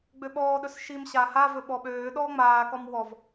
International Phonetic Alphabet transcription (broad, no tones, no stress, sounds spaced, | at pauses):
ɡ͡b ø ɓ ɔː ɗ ɵ s ʃ i m ɕ aː h a v ɵ ɓ ɔ ɓ øː ɗ ɔː ŋ͡m aː k ɔ m w ɔ v